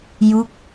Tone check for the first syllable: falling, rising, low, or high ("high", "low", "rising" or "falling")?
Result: falling